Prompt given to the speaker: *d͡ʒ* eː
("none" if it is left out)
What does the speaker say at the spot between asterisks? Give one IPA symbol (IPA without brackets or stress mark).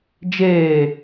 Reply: d͡ʒ